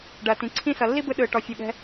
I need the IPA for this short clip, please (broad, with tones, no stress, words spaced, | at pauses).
ɖɐː˨tĩ˨ǀʰĩ˦ sʌ˨lːi˦bɯ˧ ɗɯː˨ʈɔ˨fʲu˨ɠɛ̤˧